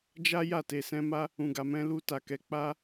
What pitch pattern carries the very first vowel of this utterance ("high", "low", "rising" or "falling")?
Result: high